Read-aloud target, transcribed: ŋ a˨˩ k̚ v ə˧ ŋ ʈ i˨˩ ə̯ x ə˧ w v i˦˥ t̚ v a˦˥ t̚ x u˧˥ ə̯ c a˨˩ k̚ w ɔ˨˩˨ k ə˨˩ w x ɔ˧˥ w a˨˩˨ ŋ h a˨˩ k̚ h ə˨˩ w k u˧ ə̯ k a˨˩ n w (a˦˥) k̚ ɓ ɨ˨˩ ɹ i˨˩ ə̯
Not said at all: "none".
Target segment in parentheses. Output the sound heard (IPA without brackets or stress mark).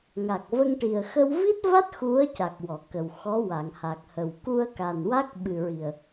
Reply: a˦˥